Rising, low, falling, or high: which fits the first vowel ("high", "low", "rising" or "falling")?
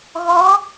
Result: rising